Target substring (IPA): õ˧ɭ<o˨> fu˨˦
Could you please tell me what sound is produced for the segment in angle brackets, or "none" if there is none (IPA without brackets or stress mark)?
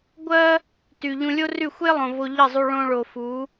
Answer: o˨